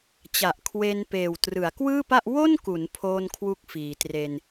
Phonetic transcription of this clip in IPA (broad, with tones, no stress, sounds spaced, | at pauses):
t͡ɕ a˨˩ ʔ kʰ w e˧ n p eː˨˩ w t r ɯ˩˦ a̯ k w ɯː˥˩ p a˥˩ ʔ w o˥˩ n k u˩˦ n pʰ oː˥˩ n kʰ w u˥˩ k̚ f iː˩˦ t r e˧ n